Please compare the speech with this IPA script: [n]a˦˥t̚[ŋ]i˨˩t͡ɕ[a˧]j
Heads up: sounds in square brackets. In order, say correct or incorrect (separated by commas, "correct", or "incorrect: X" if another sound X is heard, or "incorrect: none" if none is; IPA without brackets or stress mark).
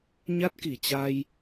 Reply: incorrect: ɲ, incorrect: k, correct